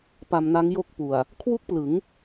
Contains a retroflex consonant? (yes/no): no